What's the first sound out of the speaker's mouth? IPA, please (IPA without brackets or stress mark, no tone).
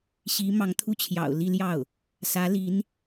ɕ